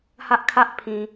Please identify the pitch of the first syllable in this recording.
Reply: high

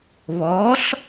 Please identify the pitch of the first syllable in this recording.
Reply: rising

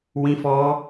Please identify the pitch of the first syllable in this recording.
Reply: high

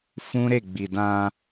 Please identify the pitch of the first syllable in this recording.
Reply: high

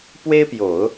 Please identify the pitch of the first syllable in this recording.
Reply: high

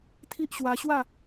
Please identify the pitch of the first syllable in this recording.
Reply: high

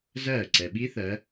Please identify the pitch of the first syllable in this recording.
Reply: falling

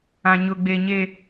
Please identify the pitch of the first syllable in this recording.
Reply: low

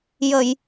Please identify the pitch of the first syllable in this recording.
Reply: low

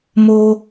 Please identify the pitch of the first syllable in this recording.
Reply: high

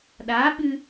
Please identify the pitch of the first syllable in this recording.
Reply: rising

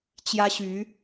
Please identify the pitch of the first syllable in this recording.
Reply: high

